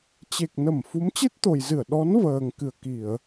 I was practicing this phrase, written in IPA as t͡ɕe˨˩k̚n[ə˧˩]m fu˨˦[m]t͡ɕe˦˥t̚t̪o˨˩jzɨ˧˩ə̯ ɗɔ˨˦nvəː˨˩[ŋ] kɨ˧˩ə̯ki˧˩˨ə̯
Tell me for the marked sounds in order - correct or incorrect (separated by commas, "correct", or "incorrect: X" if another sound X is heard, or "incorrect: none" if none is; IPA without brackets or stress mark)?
correct, correct, correct